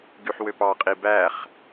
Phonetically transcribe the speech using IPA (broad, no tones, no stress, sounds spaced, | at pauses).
ɡ y ħ w ø p ɑ qʼ i b æ χ